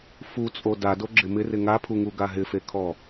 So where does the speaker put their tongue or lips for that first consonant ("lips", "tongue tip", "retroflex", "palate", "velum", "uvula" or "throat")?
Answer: lips